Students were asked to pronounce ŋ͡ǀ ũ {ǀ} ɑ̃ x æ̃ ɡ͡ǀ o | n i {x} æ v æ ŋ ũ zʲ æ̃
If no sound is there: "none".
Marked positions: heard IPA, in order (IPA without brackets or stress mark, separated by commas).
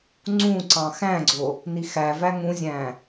ǀ, x